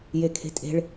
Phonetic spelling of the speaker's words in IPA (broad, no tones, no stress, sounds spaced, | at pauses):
j e kʰ e̤ tʼ e̤ ɭ